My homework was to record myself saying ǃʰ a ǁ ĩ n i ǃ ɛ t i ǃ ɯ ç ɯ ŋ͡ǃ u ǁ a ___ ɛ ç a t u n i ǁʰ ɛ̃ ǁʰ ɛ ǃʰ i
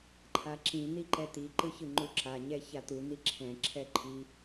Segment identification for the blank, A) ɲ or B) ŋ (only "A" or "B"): A